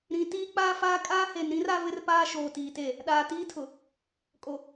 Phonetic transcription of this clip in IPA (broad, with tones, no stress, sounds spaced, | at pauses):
ɾ ĩ˨ t iː˦ k͡p aː˦ f aː˦ kʼ aː˦ h e˨ n ɾ ĩ˦ r a˦ v ɪ˦ r p aː˦ ʃ oː˨ t iː˨ t e˦˨ | ɗ aː˨ t iː˦ tʰ ʊ˨ | kʼ o˨